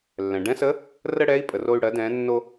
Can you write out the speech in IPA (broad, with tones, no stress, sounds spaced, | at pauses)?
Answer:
lː ɛ̃˩ ɖ ɛ̃˧˥ s ə˧˥ | r ə˥ ɽ ɛ˧˥ i̯ pʼ ə˩ r o˧ y̯ ɽ ɜ˩˧ d ɛ̃˩˧ nː o˧